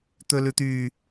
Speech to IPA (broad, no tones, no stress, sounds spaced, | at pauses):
t̪ ɵ l ʉ t̪ y